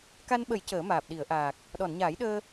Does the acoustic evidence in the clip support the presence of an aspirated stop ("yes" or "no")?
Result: no